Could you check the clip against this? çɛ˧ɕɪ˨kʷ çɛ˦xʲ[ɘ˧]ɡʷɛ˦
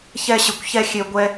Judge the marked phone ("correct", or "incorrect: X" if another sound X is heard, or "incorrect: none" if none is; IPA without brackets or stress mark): incorrect: e˧